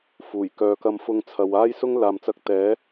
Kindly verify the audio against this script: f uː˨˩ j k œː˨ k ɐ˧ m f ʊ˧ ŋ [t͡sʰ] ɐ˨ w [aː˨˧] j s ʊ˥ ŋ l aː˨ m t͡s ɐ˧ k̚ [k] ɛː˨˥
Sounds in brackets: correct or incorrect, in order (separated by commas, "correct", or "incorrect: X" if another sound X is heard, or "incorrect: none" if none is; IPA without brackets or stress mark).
correct, incorrect: aː˥, incorrect: t̪